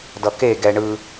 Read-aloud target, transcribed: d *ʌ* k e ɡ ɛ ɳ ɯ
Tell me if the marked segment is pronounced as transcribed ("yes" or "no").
yes